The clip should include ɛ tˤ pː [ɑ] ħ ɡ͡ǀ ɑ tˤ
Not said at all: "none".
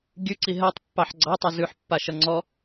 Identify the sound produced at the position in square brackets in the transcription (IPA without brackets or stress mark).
ɑ